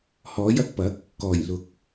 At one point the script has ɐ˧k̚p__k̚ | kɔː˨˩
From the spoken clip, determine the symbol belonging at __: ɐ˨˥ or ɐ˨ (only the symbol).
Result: ɐ˨˥